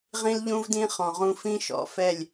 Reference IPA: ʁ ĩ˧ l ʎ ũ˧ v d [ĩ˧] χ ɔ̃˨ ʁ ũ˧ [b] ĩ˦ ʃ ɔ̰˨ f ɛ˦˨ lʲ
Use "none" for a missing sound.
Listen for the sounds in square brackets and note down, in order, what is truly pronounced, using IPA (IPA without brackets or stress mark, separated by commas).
ĩ˧, f